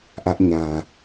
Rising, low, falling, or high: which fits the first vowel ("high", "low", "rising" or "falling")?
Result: high